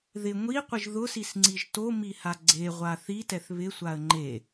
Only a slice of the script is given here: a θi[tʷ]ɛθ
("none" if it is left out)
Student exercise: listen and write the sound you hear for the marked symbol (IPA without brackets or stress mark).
t